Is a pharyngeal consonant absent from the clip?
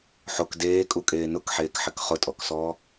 no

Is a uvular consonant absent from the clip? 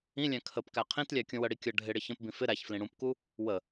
no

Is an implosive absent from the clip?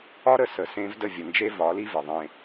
yes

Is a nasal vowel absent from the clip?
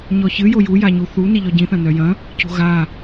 no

